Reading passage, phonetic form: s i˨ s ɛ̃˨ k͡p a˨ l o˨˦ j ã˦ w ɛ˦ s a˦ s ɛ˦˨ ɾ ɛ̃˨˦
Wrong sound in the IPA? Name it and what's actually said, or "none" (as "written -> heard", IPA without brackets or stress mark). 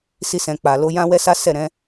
i˨ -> i˧